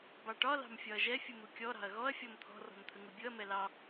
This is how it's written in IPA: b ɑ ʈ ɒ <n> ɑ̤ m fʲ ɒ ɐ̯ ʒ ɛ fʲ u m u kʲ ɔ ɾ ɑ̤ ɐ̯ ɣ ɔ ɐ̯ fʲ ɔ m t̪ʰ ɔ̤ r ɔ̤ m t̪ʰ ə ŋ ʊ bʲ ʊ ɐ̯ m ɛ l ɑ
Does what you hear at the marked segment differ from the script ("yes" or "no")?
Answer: yes